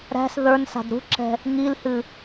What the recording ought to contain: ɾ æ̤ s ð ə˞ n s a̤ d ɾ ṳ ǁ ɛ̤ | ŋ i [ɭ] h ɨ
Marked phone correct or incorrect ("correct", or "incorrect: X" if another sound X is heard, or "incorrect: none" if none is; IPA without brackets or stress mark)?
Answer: incorrect: l